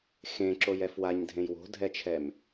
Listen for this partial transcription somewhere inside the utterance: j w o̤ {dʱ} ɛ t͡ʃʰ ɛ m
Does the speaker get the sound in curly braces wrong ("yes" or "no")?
no